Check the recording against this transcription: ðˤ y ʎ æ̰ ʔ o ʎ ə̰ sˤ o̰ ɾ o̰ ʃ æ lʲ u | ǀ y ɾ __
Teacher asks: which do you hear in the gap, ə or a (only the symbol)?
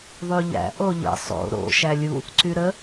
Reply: ə